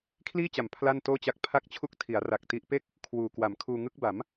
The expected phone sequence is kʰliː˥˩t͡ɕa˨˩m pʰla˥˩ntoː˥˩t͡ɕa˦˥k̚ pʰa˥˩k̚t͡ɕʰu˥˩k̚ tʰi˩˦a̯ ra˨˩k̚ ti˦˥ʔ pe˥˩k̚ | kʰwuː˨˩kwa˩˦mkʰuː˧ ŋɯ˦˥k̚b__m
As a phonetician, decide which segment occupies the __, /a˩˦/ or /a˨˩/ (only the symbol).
a˩˦